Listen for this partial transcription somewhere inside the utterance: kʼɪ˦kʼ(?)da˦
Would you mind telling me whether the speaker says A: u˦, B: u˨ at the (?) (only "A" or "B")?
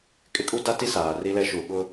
A